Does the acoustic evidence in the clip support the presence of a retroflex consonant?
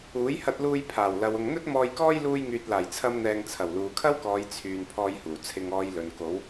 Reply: no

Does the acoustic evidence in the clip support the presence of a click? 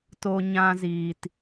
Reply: no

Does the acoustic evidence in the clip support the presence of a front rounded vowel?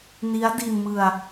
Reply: no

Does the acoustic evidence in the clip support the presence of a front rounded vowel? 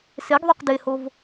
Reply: yes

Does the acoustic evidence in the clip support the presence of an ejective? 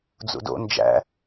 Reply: no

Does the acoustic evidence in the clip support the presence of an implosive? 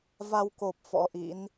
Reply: no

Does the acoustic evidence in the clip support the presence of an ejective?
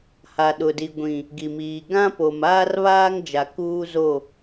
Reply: no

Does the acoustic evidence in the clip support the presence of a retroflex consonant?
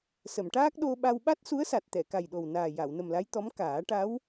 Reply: yes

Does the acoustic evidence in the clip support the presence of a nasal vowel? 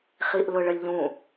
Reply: yes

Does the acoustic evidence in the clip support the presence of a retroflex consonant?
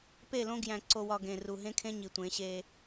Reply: no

